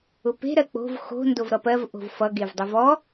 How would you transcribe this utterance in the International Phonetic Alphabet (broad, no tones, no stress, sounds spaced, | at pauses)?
ʊ p e̤ ɾ ɜ k͡p o̤ v x o̤ n d o v ɾ ʌ p ɜ v ʔ o̤ v f ʌ ɡ e v dˤ u v ɔ